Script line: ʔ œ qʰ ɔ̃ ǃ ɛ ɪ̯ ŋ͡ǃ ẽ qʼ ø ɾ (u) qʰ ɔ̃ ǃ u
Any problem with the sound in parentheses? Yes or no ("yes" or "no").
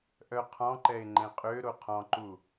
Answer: yes